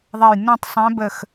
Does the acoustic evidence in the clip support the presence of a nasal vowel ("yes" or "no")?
yes